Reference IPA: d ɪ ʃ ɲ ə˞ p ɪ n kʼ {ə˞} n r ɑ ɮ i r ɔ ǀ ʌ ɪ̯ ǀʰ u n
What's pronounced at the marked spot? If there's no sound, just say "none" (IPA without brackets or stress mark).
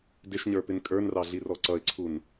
ə˞